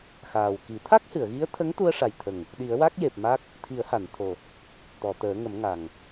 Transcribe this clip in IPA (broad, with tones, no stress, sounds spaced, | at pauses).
x aː˨˩ w k i˨˩˦ t̪ʰ a˦˥ k̚ h ɨ˨˩˨ ə̯ ɣ i˧˥ ə̯ t̪ʰ ə˧˥ ŋ t̪ u˧ ə̯ ʂ a˨˩ j t̪ʰ ə˨˩ ŋ | ɗ i˨˩˦ ə̯ w a˦˥ k̚ j e˨˩ p̚ m a˦˥ k̚ | t̪ʰ i˨˩˦ ə̯ h a˨˩˨ n t̪ʰ o˨˩ | t̪ ɔ˨˩˨ t̪ əː˨˩˦ ŋ ə˨˩˦ m ŋ a˨˩ ŋ